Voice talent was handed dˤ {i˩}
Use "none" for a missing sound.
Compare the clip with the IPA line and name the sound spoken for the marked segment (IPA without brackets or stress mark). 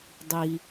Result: i˩